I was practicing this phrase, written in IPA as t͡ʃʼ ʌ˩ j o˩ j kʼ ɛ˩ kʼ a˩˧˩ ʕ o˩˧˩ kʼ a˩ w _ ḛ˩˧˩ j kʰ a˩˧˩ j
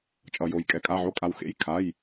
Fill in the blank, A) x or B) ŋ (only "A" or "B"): A